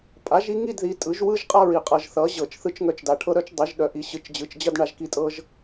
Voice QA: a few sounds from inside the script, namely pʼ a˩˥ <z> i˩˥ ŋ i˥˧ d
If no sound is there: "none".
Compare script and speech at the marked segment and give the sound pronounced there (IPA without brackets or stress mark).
ʒ